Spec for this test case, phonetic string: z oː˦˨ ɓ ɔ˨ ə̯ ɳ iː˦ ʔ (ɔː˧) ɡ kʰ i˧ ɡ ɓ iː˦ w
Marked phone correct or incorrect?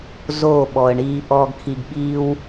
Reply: correct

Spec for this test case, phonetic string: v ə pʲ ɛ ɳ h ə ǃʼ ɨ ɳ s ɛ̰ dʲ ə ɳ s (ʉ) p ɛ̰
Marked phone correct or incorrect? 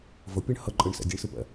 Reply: incorrect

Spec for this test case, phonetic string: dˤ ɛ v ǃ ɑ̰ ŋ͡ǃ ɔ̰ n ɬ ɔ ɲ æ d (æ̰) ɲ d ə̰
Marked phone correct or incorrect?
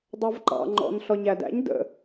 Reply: correct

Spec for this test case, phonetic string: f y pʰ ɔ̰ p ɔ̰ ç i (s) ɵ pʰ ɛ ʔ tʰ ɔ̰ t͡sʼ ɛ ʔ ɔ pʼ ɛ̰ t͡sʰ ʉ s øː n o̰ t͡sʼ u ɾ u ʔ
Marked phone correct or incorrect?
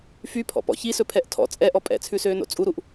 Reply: correct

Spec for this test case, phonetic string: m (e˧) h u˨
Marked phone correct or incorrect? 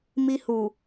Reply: incorrect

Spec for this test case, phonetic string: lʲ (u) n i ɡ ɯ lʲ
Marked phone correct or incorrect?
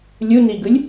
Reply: correct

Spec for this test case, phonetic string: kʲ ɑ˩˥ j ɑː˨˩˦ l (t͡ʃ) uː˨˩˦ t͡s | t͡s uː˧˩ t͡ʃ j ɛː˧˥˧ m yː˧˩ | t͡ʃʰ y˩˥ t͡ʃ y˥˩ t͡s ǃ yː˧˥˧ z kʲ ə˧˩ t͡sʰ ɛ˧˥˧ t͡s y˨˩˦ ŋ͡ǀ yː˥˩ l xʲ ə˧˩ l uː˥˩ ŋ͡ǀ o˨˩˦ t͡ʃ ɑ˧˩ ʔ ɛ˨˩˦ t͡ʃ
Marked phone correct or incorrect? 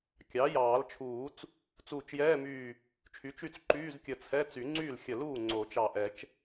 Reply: incorrect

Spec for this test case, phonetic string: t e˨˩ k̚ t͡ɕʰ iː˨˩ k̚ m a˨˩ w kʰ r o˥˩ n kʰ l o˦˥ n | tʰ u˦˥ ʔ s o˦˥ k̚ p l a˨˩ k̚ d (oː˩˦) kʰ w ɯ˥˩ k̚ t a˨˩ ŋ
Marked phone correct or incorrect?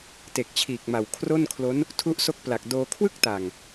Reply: incorrect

